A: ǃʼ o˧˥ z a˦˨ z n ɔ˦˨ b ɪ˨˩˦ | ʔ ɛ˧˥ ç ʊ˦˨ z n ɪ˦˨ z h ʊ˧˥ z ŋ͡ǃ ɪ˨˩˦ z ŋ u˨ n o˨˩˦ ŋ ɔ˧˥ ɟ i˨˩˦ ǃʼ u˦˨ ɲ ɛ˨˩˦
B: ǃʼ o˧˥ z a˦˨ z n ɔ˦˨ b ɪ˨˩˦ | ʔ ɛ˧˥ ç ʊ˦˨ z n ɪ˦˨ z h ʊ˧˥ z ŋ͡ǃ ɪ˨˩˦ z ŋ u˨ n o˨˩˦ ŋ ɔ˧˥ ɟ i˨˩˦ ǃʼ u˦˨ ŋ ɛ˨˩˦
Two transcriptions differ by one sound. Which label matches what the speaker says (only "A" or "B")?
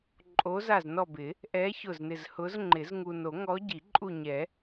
A